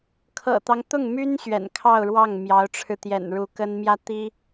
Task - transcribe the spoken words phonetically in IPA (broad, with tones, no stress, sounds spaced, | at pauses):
kʰ ɤ̰˨˩ t̪ ɑ˦ ŋ t̪ ʊ˥˩ ŋ m y˥ n ɕ ɥ ɛ̰˨˩ n kʰ ɑ˥˧ ʊ̯ ɻ w ɑ˥˩ ŋ m j ɑ˧˥ ʊ̯ ʈ͡ʂʰ ɻ̩˧ t̪ j ɛ̰˨˩ n ɻ u˧˥ k ə˥ n m j ä˥ t̪ i˥